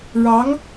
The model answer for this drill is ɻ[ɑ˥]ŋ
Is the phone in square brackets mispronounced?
yes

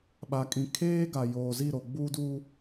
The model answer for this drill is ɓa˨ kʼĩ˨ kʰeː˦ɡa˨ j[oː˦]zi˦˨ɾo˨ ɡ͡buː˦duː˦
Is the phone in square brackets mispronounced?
yes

